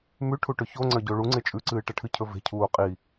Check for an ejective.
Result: present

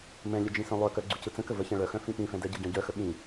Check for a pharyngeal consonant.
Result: absent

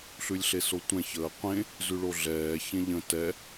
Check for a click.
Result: absent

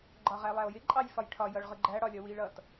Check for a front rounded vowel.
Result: absent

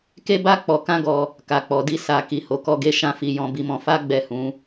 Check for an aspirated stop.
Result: absent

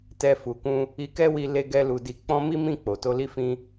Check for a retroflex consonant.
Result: absent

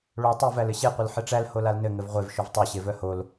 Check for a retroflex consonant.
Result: present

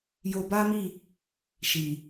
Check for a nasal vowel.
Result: absent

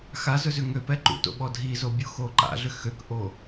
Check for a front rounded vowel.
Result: present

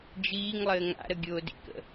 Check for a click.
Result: absent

